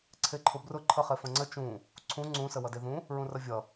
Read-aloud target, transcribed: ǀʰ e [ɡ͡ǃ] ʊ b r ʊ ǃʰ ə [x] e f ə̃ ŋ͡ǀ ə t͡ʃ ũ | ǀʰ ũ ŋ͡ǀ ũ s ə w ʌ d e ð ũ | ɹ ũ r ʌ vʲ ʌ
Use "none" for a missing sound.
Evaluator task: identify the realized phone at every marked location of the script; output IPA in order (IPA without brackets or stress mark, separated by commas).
ǃʰ, χ